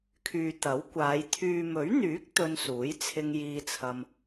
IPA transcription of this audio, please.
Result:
kʰ yː˨ t̪ ɐ˨˥ w kʷ aː˨˧ j t̪ʰ yː˨ m ɵ˨˥ ɥ n̪ yː˨˥ k̚ t̪ ɵ˧ n s uː˨˥ j t͡sʰ ɪ˧ ŋ j iː˧ t͡sʰ ɐ˧ m

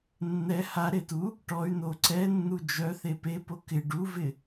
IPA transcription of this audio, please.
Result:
nː ɛ h a ɾ e t u | ʈ ɔ y̯ n o ǀ ɛ nː u d͡ʒ œ θ e p e p o k ɪ ɖ u v ɪ

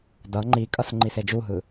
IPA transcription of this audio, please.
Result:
d ʌ ŋ͡ǃ i kʼ ʌ s ŋ͡ǃ i s e d͡ʒ u ɦ ɯ

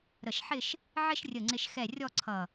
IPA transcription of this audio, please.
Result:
ɾ ə˧˩ ʃ ħ ɪ˥˧ ʃ | ʕ ɪ˥ ʃ rʲ ə˧˩ ŋ͡ǀ ɪ˧ ʃ x ɛ˧˩ rʲ ɔ˥˧ ǀʰ ʌ˧˩

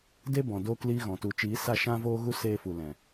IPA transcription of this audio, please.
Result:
d e˦ b ɔ̃˨ d oː˧ k l iː˧ ɣ ɔ̃˨ t u˨ t͡ʃ iː˨˦ s a˦˨ ʃ ã˧ v oː˦ ɣ u˦ s eː˧ f u˨ l ɛ̃˨

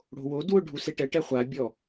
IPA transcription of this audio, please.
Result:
ɽ o̤ w o d w ʊ ɖʱ u s e ʈ ɛ ʈ ɛ χʷ a bʲ ɔ

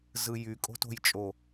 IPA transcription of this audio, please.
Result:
z ɯ j y kʼ o̤ t o̤ j t͡ʃʼ o

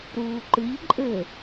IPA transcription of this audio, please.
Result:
ɾ uː ǃ ɨ ʎ ǃʼ ɘ

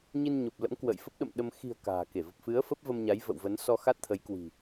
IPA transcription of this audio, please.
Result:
ɲ i˧ n ɲ o˨˩ p̚ l ə̰˧˥ m k w ə̰ː˧˨ j f ə˦˥ p̚ ɗ ə̰˧˨ m ɗ ə˧ m x i̤˨˩ ə̯ k a̤ː˨˩ k e˧˩ v ə˨˩ p̚ f ɨ˨˦ ə̯ f ə˦˥ p̚ v ə˧ m ɲ a˨˦ j v ə̰˧˨ w v ə˨˦ n s ɔ˧ x a˦˥ t̚ t̪ʰ ə˨˦ j k w i̤˨˩

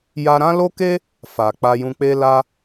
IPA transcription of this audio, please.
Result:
j a˧ ɾ ã˦ l o˦ k e˦ | f a˨ k͡p a˧ j ũ˧ k͡p e˦ l a˦

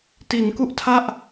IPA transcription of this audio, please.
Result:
t i˩˦ n k u˥˩ ʔ tʰ a˥˩ ʔ

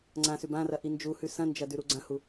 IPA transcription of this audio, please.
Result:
ŋ͡ǀ ã s ʉ b ã r ɐ ʔ i n d͡ʒ u h ʉ s ɐ̃ n d͡ʒ ɐ d ʉ ɾ u ɡ͡ǀ ɐ̃ h u

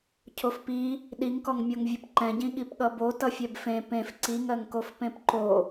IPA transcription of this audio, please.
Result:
cʰ o f p i | ɗ i ŋ k ɔ ŋ mʲ o ŋ vʲ ʌ p ǃ ɛ̃ ɟ ĩ ɠ i p ɠ ʌ b o t ʌ fʲ ɛ b f ẽ p ẽ f ǀ i ŋ ɜ ŋ k o f p ẽ p ǃ o

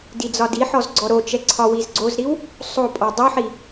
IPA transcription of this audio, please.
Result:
d i d͡z ɒ d i ħ ɔ z ɡ͡ǀ ɔ ɾ o t͡ʃ ɛ ǀʰ ɒ w i z ɡ͡ǀ o z ɾ i w | sˤ o pʼ ɔ dˤ u ħ i

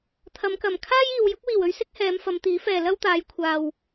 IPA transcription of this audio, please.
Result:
t̪ʰ ɐ˨˧ m k ɐ˨˩ m kʰ aː˥ j iː˨ w j ʊ˨˥ k̚ w iː˨˩ w ɵ˥ ɥ s ɪ˥ k̚ h ɛː˨˧ m f ɐ˨˧ m t̪ iː˨˥ f ɛː˨ l ɐ˥ w t̪ aː˨˧ j kʷʰ aː˨ w

